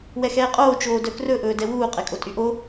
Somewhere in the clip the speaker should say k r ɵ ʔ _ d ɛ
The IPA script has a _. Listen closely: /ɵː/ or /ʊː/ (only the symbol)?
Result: ɵː